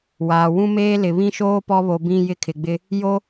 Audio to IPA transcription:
waː˨ wũ˦meː˦ lɪ˨βĩ˦ʃoː˦ pɔ˦βo˨bĩ˦˨ jɪ˦kʰɪ˨ɡ͡bɪ˦ | jo˦

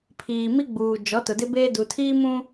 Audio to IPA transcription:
pʰiː˨mi˦ɡ͡buː˨ d͡ʒɔ˨˦tʊ˨dɪ˦beː˦ du˨tʰiː˦mũ˦

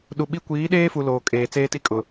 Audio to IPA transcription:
ɗu˨ɓi˦ kʷiː˨˦ɗeː˦fu˨ loː˨kʼeː˨ t͡seː˦ti˦kʼʊ˨

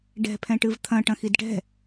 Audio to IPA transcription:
ɖɛ̤pʰɛ̃ʈɨv t̪ʰɐ̃ ʈɐ̃xidʈɛ̤

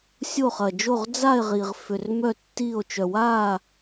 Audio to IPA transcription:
sʲo˥˧χɐ˧d͡ʒo˥˧ʁ d͡za˥˧e̯ʁi˧ʁ fʏ˧rmœ˥˧ tːi˥˧o̯ t͡ʃœ˧waː˥˧

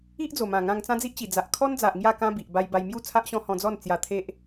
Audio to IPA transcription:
i˦ʔd͡zo˨˩mã˨˩ ŋã˧ŋt͡sã˦d͡zi˦ʔt͡ɕi˨˩ d͡za˨ʔkʰɔ˦nd͡za˨ʔ ŋja˥˧kã˦bi˨ʔ ba˧jba˧jmju˥˧ t͡sʰa˦ʔɕɔ̃˦ hɔ̃˧d͡zɔ˥˧n t͡sja˧t̪ʰe˦ʔ

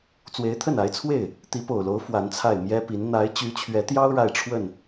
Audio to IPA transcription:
t͡swe˧˥ɪ̯t̪ʰə˥˩na˧˥ɪ̯t͡sʰwe˥˩ɪ̯ | t̪i˧˥po˨˩ʊ̯lo˧˥ʊ̯ fwa˧˥nt͡sʰa˥˩ɪ̯ mjɛ˥pi˧˥n n̪a˧˥ɪ̯t͡ɕy˧˥t͡ɕʰɥɛ˧˥t̪jɑ˥ʊ̯ ɻa˥˧ɪ̯ʈ͡ʂʰwə˥˩n

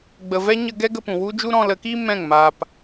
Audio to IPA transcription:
ɡ͡bə˨vɛ˦ ɲə˧ ɡɛ˦ɡə˧pũ˨ wu˦d͡ʒu˦ ɾɔ̃˧lə˨˦ki˦ mɛ̃˦˨ŋ ma˧p

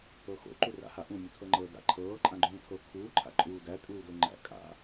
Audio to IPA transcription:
ɤxo̰ ǃura̰haʔũ mʲutʰɤŋ͡ǃɤːda̰ ǃʰɤː ǃʼãɡ͡ǃũːtʰɤ kʰuː ǃʰa̰ǃʼuːdæ tʼuːdoŋ͡ǃæ̰ kʼa̰

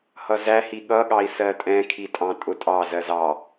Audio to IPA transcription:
hʌzæhi ɠʌɠɑi̯ sɜtʼɛ̃kʰitʼɑ̃ tʼʊtʼɑzɜz ɑ

